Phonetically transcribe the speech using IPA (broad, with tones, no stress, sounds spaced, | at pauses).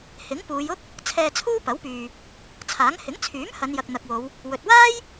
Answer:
h ɪ˨˥ ŋ p uː˨˧ j ʊ˥ k̚ | t͡sʰ ɛː˧ t͡sʰ uː˥ p ɐ˨˥ w p yː˨ | t͡sʰ aː˨˥ ŋ h ɪ˨˥ ŋ t͡sʰ yː˨˥ m h ɐ˨˧ n j ɐ˨ k̚ n̪ ɐ˨ k̚ w o˨˧ w | w ɵ˨ t̚ w aː˥ j